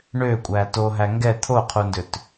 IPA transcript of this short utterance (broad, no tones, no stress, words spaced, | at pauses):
ɳøkʷʼæ toɦæ ŋɡɛ t̪ʰoqʰundøt